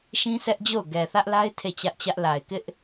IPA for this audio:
ʃĩ˦sɛ˦ʔd͡ʑo˦˨ʊ̯ ɡɛ˨ θä˦ʔla˦ɪ̯ tʰe˦˨t͡ɕä˦ʔt͡ɕä˦ʔ la˨ɪ̯kɪ˦ʔ

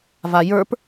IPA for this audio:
vajə˞p

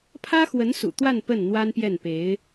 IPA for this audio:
pʰä˥xwə˧˥nsṵ˨˩ t̪wa˥˧n pə˥˩n n̪wa˥npjɛ˥˩npe˧˥ɪ̯

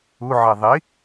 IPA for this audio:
uʕɛ ðˤi

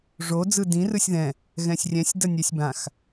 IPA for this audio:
ʐo d͡zɯdĩ rɯsʲðɛ̃ | ɣɛ̃sʲrʲɛ̃sʲ dʌnʲɛsʲbãx

